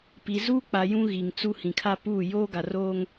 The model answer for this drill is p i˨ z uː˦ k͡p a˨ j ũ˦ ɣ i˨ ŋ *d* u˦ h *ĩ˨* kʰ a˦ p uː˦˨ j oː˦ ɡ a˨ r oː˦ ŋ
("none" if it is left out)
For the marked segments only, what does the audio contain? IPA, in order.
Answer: t͡s, ĩ˨

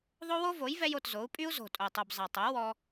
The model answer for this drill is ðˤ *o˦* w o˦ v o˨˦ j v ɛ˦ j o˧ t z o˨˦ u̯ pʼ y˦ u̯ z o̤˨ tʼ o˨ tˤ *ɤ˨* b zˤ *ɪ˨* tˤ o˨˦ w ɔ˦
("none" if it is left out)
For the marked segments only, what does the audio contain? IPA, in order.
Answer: o˦, o˨, ɛ˨

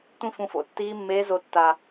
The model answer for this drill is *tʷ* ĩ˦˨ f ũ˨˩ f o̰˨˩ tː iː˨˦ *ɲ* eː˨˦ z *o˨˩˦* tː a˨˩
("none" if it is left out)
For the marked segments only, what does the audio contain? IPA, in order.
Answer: tʷ, mː, o˨˩˦

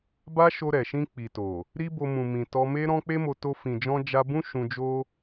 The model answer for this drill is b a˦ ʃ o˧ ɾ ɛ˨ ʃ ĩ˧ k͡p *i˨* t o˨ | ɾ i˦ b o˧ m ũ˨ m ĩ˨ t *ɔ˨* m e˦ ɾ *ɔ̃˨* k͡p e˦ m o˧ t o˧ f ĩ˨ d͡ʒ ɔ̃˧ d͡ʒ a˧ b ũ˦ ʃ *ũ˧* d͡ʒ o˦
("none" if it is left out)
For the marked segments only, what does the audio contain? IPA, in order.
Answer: i˨, ɔ˧, ɔ̃˦, ũ˧

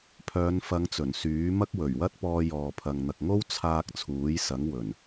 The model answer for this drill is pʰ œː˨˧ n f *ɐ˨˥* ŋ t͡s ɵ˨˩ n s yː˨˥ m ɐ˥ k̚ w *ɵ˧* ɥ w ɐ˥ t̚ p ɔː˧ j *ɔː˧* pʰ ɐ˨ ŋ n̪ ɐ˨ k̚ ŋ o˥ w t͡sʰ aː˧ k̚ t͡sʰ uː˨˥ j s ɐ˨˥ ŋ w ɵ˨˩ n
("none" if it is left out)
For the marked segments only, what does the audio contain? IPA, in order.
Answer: ɐ˨˧, ɵ˨˩, ɔː˨

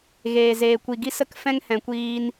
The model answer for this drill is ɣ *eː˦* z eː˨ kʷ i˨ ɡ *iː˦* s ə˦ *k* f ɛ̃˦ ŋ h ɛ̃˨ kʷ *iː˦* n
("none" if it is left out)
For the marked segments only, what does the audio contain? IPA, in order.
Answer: eː˨, i˦, k, iː˧

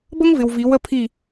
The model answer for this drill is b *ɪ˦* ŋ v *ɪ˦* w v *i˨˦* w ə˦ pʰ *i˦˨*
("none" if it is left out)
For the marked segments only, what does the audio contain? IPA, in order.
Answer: ə˦, ɪ˨, i˨˦, i˦˨

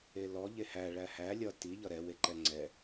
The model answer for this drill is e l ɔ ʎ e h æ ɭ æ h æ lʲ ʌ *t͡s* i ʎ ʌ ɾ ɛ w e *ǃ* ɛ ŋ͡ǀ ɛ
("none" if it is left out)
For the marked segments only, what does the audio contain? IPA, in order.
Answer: t, ǃ

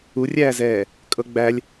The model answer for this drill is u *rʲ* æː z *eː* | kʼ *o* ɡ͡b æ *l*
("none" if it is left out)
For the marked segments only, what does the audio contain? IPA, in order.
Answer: rʲ, ɛː, ɤ, lʲ

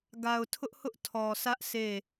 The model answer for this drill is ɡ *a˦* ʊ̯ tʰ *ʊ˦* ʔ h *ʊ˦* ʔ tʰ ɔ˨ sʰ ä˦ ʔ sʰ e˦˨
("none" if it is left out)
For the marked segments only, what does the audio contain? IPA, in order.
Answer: a˨, ʊ˦, ʊ˦

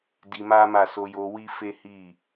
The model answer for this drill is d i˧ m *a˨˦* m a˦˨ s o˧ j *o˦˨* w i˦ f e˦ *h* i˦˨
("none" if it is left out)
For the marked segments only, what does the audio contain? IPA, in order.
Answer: a˦, o˧, h

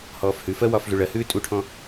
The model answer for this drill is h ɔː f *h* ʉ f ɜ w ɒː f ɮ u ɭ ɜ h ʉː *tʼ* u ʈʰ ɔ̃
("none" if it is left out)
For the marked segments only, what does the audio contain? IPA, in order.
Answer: h, tʼ

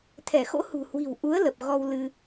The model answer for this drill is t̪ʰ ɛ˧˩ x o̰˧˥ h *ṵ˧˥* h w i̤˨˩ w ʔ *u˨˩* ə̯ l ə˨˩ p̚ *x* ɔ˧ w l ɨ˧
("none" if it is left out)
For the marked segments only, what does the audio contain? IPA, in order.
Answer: ṳ˨˩, u˨˦, ɣ

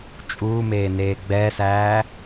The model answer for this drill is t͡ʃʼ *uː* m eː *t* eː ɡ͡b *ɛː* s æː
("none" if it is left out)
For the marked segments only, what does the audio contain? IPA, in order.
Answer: uː, n, ɛː

